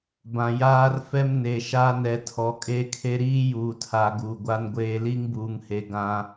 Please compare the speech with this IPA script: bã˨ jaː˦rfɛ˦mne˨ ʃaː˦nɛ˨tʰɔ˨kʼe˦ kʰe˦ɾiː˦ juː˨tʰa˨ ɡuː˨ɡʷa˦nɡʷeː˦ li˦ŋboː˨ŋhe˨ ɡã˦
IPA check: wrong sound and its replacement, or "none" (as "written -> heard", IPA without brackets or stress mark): oː˨ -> uː˨